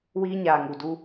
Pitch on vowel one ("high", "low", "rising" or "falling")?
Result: high